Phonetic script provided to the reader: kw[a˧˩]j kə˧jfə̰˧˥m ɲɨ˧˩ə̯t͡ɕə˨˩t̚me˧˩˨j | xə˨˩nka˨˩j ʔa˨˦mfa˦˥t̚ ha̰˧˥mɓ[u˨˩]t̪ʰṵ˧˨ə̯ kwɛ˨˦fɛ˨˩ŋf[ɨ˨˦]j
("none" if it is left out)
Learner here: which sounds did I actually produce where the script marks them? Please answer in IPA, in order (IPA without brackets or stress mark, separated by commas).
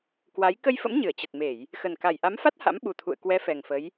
a˨˦, u˨˩, ə˨˦